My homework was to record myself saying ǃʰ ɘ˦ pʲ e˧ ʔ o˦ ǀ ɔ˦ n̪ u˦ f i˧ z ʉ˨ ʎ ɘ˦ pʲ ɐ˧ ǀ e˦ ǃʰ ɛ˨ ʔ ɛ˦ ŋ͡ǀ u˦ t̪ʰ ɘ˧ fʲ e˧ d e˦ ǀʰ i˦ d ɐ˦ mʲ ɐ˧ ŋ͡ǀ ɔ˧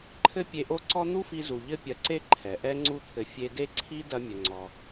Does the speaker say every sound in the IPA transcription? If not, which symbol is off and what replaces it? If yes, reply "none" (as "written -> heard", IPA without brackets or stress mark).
ʉ˨ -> u˨